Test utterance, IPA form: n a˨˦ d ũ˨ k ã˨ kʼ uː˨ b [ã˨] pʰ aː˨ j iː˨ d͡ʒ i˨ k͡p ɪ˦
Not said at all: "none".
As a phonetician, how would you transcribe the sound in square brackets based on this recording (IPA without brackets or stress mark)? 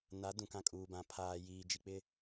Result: ã˨